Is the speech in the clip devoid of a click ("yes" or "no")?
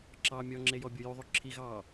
no